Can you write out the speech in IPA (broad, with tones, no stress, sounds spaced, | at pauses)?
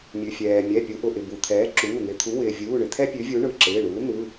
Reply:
mʲ ʉ˩ fʲ ɛː˩ mʲ ɛ˩˧˩ pʲ u˩˧ ʔ ʊ˩ ʔ ɪ˩ b u˩ t̪ʰ ɛː˩˥ ǁ uː˩˧˩ n̪ ɪ˩˧˩ t̪ʰ u˩˥ w ɪː˩ vʲ uː˩˧˩ ɳ ɪ˩ t̪ʰ ɛ˦ pʲ ʉ˩˥ vʲ u˩˥ ɳ ɯ˩˧˩ ǁ ɪː˩˧˩ ɳ uː˩˥ n̪ ɯ˩˧˩